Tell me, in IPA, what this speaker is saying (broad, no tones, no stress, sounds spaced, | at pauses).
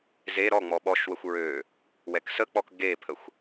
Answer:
z e ɾ ɔ ŋ͡m ɔ ɓ ɔ ʃ w ə xʷ ɹ ø | w ɛ k s ə k͡p ɔ k ɡ e pʰ ə xʷ